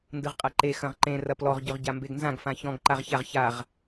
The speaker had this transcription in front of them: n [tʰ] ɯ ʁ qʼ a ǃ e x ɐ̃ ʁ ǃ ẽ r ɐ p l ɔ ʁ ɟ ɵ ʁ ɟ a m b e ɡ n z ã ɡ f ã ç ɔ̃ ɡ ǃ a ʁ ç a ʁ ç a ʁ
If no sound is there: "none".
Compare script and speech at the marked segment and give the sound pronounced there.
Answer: d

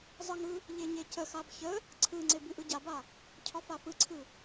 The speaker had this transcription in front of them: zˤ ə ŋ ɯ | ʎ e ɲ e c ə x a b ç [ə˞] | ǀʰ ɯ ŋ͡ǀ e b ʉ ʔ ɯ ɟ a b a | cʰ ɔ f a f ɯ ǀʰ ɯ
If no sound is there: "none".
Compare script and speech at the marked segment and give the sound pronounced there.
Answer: ə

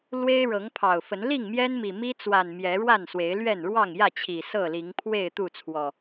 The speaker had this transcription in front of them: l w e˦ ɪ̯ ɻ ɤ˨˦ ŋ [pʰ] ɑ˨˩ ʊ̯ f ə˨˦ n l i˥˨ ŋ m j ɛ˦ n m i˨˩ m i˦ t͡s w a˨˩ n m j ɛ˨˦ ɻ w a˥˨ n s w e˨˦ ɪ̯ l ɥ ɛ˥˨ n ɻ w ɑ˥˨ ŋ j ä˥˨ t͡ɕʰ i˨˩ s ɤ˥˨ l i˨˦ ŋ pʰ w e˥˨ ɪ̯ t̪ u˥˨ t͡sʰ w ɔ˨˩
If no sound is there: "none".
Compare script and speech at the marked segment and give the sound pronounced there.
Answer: pʰ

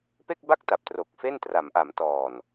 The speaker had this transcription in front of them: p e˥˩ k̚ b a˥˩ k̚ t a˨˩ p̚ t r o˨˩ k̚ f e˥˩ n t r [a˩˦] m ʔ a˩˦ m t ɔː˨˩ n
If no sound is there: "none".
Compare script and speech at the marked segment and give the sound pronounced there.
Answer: a˩˦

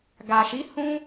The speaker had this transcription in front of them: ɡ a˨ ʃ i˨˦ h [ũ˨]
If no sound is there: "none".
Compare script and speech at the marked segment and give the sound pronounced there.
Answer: ũ˦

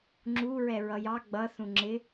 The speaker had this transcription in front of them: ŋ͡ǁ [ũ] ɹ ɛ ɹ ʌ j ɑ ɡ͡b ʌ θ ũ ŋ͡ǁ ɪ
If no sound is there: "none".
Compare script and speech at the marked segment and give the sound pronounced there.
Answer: u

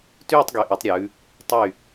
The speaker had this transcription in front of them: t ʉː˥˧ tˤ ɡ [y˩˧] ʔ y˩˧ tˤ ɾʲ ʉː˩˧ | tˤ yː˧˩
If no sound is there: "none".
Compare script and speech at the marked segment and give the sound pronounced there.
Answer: y˩˧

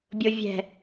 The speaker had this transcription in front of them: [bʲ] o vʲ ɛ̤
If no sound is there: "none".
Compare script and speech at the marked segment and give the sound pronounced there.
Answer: bʲ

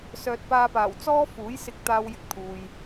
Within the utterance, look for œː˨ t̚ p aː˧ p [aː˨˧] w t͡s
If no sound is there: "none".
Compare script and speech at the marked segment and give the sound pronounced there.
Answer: aː˨˩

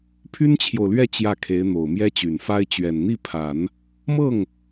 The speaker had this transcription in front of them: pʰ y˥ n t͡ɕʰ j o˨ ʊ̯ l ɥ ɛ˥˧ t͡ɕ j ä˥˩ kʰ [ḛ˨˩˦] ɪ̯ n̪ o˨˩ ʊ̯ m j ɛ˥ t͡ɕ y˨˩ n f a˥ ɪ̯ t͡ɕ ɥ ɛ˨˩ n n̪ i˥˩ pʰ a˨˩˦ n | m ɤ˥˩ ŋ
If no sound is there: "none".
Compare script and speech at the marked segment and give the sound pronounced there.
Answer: e˧˥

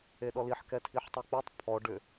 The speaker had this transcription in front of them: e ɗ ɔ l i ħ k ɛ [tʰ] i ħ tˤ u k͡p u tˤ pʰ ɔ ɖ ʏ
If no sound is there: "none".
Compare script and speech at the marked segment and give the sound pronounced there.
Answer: tʰ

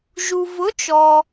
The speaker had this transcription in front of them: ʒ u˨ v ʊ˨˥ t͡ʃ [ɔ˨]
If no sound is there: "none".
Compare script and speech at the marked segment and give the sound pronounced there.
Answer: ɔ˨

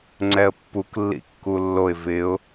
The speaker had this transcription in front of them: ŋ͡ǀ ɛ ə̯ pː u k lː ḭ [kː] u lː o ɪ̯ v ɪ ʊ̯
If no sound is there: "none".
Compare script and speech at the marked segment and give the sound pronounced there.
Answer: kː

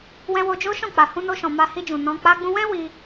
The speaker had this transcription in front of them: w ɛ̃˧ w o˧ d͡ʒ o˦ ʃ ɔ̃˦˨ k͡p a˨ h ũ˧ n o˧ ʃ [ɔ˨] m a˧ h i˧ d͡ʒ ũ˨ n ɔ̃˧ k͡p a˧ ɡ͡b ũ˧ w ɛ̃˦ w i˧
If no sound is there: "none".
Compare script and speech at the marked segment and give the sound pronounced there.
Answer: ɔ̃˨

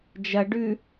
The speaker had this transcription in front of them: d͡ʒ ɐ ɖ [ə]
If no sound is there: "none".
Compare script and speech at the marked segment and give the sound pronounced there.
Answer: ʉ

